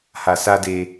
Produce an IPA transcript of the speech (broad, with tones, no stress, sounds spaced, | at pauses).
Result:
h a˨ s a˧ d e˧